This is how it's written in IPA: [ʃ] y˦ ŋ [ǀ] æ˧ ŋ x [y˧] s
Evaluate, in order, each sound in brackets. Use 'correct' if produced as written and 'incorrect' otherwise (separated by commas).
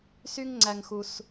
incorrect, incorrect, incorrect